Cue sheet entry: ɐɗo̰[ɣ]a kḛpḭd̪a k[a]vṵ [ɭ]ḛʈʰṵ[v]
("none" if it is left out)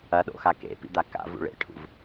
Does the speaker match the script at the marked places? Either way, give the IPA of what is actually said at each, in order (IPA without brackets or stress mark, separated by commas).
x, a̰, ɭ, v